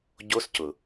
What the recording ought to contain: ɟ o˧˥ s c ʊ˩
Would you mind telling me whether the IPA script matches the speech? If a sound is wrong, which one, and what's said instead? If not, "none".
none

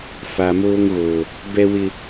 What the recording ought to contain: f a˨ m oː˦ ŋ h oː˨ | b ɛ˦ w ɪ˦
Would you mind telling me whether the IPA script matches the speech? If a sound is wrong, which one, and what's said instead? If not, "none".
h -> ɣ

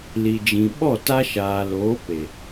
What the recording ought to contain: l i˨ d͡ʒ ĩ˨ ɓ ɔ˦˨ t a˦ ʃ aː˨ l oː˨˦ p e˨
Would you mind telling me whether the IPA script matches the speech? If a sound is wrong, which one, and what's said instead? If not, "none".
none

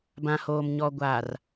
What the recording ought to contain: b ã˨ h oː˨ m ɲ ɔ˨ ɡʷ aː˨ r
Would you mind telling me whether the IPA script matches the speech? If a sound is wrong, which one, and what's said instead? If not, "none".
none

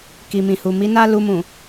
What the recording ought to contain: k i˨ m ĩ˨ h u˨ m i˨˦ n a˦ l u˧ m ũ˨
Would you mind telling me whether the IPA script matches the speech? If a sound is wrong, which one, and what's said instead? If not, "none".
none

